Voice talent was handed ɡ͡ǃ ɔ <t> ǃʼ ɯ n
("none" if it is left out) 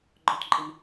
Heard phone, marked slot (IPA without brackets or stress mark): t